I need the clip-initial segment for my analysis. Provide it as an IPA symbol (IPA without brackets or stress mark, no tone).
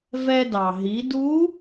v